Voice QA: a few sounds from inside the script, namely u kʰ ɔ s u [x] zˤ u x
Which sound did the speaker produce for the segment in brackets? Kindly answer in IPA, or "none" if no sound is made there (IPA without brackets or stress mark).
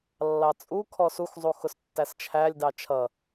x